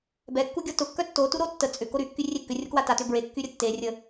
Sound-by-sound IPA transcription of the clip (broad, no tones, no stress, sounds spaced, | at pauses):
b ɛ kː u ɡʲ ɔ t ʊ kː œ tː o t u ɾ o tː ə t͡sʼ ʏ k o ɾ y kː y rʲ e kː ʏ rʲ ʊ k w a t a t ʏ b ɹ e kː y ɾʲ ə tː e rʲ ə